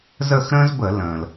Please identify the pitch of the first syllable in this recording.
falling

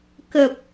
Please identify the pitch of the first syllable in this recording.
low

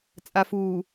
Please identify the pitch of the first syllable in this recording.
low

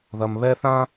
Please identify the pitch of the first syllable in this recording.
low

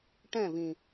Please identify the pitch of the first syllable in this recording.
falling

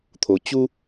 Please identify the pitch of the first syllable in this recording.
low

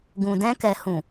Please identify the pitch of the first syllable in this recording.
low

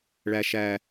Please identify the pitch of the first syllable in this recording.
high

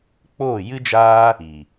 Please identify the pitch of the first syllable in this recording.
falling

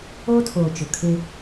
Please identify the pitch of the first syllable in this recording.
high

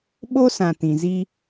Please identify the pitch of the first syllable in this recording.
high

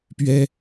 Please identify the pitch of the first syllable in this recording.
high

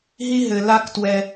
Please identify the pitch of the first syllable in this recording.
high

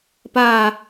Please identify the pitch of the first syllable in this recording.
falling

